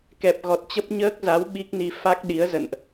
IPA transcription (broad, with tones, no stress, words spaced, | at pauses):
kɛ˨˩p̚ɣɔ˨˩t̚t͡ɕə˦˥p̚ ɲəː˦˥k̚za˨˦w ɓi˦˥k̚ni˧ fa˦˥k̚ɗi˨˦ə̯zə̰˧˨nʔ